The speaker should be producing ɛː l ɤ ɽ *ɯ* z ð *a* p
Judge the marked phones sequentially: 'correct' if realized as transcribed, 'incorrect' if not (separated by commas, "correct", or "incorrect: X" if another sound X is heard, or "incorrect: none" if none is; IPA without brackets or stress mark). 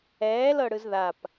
correct, correct